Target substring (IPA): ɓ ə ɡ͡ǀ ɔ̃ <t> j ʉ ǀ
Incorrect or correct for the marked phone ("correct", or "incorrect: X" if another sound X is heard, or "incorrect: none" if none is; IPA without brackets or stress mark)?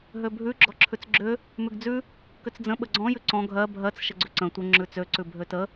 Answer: incorrect: none